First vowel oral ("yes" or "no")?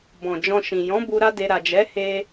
no